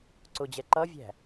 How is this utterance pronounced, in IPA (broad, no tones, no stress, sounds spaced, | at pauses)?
ǀ ʊ d͡ʑ ɛ ǃ ʌ vʲ æ̤